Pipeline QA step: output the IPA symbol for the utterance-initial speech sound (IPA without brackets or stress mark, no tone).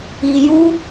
i